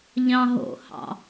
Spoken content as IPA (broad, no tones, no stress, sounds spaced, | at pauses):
ʎ ɑ̃ ɦ o̰ h ɑ̰